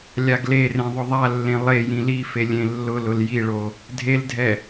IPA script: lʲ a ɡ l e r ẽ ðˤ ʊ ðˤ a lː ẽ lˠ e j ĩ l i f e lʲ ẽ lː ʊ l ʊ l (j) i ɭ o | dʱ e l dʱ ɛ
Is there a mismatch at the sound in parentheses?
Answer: no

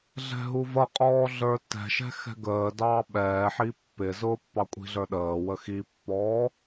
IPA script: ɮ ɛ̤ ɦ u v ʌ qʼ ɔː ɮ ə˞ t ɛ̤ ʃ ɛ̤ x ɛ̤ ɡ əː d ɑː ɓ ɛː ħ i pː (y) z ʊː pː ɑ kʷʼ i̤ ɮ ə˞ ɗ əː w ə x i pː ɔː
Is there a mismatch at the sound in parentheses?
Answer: yes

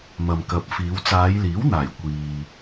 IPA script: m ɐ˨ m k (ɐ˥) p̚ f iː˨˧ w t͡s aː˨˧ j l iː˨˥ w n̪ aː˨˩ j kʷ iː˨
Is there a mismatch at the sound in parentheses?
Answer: yes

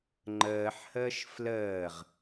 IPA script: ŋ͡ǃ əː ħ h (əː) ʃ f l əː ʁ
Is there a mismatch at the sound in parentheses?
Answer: no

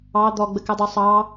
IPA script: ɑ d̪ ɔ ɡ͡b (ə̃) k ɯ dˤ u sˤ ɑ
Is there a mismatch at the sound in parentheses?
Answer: yes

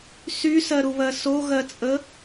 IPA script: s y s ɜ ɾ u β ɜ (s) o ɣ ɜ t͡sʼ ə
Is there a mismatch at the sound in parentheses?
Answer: no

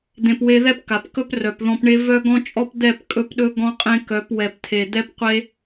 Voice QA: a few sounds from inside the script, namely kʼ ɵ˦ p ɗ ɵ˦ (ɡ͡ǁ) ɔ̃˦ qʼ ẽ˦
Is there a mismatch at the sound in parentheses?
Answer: yes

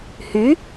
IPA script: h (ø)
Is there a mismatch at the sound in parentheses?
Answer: yes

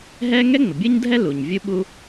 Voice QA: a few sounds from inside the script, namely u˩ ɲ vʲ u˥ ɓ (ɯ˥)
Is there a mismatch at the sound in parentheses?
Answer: yes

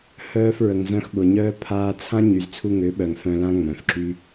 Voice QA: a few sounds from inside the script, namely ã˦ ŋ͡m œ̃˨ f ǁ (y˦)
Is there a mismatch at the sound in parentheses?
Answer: no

